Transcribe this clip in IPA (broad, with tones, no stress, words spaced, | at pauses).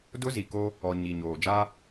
dʊ˦zi˨ ko˦ | ɔ˨ ɲi˨ɲoː˨ d͡ʒa˦